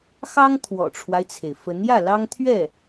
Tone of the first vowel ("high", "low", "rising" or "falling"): high